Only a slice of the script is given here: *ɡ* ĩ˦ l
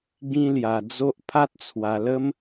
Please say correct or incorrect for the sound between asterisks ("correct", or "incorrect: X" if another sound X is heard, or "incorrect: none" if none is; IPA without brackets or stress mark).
correct